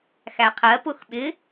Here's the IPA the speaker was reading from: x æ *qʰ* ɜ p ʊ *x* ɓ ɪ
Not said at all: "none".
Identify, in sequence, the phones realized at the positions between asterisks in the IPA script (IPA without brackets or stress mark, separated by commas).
qʰ, x